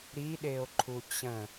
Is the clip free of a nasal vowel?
no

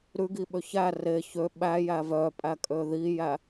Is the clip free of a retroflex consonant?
yes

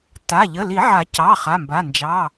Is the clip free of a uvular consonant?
no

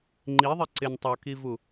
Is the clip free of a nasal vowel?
yes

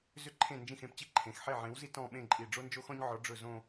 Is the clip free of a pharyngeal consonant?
no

